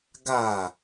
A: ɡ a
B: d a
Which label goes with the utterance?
A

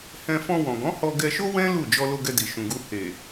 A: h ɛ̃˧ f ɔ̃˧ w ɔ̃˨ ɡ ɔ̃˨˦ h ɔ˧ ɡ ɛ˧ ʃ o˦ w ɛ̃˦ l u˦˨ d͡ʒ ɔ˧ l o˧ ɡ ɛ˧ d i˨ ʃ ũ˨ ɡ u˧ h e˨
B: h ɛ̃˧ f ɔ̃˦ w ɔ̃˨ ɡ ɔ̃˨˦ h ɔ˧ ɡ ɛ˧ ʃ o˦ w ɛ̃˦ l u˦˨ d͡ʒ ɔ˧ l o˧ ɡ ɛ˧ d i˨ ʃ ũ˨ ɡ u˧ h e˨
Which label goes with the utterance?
A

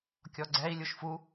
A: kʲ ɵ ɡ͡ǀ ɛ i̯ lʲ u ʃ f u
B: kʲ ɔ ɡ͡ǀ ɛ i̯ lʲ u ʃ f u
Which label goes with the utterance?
B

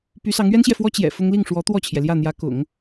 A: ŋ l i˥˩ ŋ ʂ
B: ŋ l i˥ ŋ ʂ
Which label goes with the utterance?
A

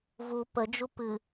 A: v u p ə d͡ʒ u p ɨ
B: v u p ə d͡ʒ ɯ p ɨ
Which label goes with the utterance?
A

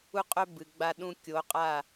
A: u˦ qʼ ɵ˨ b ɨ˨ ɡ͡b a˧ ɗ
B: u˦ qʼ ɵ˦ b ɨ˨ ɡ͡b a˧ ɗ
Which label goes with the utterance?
B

